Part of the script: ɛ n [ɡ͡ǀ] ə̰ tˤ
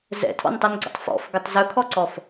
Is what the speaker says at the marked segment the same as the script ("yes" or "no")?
yes